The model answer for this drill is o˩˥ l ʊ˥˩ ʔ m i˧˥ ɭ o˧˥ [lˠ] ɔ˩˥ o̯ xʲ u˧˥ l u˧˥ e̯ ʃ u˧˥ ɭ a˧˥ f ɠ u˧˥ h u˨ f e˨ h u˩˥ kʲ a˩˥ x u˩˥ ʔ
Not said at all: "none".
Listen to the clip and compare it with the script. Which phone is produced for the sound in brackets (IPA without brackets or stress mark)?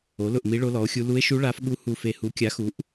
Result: l